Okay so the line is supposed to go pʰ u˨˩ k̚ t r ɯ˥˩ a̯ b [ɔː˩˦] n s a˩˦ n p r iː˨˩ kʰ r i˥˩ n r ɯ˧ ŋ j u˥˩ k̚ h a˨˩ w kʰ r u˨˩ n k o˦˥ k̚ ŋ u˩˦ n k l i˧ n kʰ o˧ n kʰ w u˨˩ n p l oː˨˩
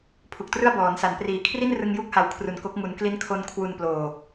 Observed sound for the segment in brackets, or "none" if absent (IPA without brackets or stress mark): ɔː˩˦